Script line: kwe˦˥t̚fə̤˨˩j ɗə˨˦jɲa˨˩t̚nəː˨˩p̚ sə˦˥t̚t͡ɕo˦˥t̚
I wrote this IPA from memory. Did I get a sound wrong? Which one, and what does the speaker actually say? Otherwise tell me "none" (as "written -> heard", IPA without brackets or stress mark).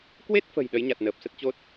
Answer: none